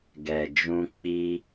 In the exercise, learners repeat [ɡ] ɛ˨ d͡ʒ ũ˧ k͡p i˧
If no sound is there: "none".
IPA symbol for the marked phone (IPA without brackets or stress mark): ɡ